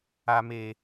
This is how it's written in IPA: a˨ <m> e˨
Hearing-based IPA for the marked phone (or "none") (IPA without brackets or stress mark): m